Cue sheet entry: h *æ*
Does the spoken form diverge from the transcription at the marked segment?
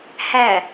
no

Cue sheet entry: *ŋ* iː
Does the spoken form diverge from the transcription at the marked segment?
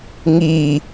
no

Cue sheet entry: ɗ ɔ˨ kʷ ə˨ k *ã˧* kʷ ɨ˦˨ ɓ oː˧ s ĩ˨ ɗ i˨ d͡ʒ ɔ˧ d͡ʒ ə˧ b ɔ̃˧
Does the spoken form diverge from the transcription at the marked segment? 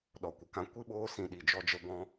no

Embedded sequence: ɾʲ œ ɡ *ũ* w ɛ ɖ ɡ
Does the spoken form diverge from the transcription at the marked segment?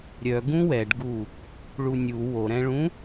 no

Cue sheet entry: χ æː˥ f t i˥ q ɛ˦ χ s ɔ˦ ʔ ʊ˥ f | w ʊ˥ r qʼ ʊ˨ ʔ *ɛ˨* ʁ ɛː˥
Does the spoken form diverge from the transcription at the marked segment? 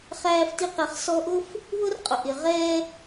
yes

